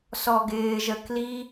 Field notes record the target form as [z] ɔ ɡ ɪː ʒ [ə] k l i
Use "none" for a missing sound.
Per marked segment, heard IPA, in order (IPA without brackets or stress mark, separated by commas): s, ə